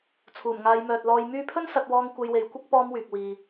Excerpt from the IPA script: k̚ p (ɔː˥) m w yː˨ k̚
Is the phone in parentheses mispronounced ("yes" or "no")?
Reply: no